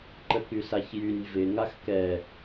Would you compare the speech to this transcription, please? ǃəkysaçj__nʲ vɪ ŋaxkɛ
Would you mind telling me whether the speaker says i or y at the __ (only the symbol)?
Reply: y